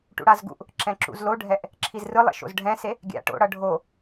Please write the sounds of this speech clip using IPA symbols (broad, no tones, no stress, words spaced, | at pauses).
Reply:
ʈṵɽazɡṵʔ | ǁɛ̃ǁṵzloɖʱɛʔ | ǁʰizrɯlˠḛ ʃo̰zɖʱɛ̃se | ɡʲa̰ʈo̰ ɽʌɖʱo